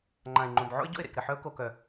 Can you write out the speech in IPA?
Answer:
ŋ͡ǃã˨ɪ̯ŋ͡ǃõ˨b ʕo̰˦ɪ̯ɟo̰˦˨ɪ̯ ɾḛ˨kɾɘ˨ ħœ˦ʊ̯ko˨kœ˨

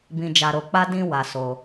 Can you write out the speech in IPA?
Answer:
bĩ˧ d͡ʒa˧ɾo˧k͡pa˦ dĩ˧ wa˧so˧

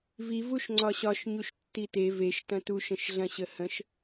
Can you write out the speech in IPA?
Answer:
vi vuʃŋ͡ǀɒɕɒʃ ɲuʃtːite veʃ tɐ̃tuʃ ə̃ʃɮɐ̃ɕəhə̃ʃ

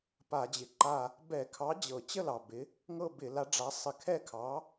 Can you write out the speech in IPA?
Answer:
pa˧˩˧d͡ʑɪ˨˩ ǃa˥˧ | bɛ˧˩˧kʰɑ˨˥ d͡ʑɤ˧˩˧ t͡ɕə˥˧ lɑ˨˩bɪ˨˥ | ŋɤ˥˧bɪ˧˩˧la˨˥ɖ͡ʐa˨˥ sˤɪ˧˩˧kʰɛ˥˧kʰɑ˨˥

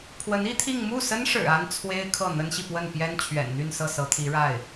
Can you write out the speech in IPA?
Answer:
pʰwə˧˥ni˥t̪ʰi˥˧ŋ mu˥˩sə˥nʂɻ̩˨˩ a˥n t͡sʰwe˥ɪ̯kʰɤ˥˩ n̪ə˥nɕi˨pwə˥˩n pjɛ˥nt͡ɕʰɥɛ̰˨˩nn̪y˥˧nsɤ˥˩ sɤ˧˥t̪ʰi˧˥ɻa˥˩ɪ̯

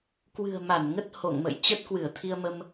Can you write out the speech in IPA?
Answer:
kwɨ̤˨˩ə̯ma˧˩n ŋə˦˥t̚ho̰˧˨ŋmə̰˧˨j t͡ɕə˦˥t̚kwɨ˧˩ə̯t̪ʰi˧ə̯mə˧m

